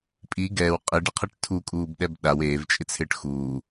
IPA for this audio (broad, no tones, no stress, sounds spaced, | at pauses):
pʼ i ɡ ɛː w qʼ i ɖ i qʰ e ʈ tʰ u kʼ uː b ɗ ɛ b ɗ a w eː v t͡ʃʼ ɪ t͡sʰ ɪː ʈ x uː